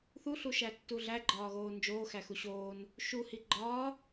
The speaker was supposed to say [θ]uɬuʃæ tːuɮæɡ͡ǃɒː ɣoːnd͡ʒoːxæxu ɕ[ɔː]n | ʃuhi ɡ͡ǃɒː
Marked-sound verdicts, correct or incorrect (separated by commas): correct, incorrect